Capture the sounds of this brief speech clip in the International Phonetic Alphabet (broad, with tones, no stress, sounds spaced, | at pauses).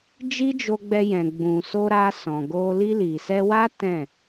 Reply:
d͡ʒ i˦ d͡ʒ o˧ ɡ͡b ɛ˧ j ɛ̃˨ ɡ͡b ũ˨ s o˧ ɾ a˧ s ɔ̃˨ ɡ o˧ l i˧ l i˨ s ɛ˧ w a˦ t ɛ̃˦˨